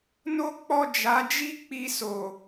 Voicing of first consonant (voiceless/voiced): voiced